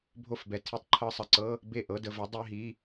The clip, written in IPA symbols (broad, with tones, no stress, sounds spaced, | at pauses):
bʱ o˥˩ f b ɛ˨˥ tʰ i˨˥ tˤ ǃʰ ɤ˧˥˧ sˤ ə˨˩ ǀ ɤ˧˥˧ | b e˥˩ ʔ ɤ˧˥˧ d ə˧ v ə˨˥ dˤ e˧˥˧ ɦ i˧˥˧